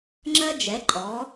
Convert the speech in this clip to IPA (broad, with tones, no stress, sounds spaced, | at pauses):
ŋ͡ǁ ɜ˦ d͡ʒ ɛ˨˦ ǃʼ ɔ˨˦